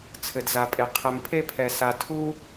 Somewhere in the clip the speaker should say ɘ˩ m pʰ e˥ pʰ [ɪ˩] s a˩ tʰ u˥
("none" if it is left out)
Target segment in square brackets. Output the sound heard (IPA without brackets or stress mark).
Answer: ɛ˩